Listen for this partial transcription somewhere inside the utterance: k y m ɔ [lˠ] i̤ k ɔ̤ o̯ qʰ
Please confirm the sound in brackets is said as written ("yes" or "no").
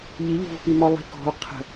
yes